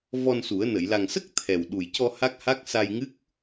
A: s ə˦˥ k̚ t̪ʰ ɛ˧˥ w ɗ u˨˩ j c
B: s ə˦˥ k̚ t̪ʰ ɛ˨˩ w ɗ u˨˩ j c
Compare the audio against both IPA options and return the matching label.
B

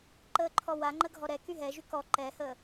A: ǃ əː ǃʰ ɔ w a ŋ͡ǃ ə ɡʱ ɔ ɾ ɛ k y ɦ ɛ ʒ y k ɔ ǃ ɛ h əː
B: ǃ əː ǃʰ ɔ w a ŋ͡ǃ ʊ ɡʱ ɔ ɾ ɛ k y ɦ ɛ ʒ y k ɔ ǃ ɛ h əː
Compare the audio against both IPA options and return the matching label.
A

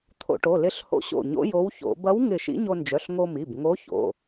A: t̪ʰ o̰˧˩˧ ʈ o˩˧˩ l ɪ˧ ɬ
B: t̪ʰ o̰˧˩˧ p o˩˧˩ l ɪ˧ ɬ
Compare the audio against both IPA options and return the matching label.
A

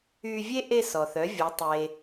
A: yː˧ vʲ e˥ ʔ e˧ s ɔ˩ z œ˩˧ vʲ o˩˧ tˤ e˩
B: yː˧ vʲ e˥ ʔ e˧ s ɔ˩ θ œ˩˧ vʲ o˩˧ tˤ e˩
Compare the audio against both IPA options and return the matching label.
B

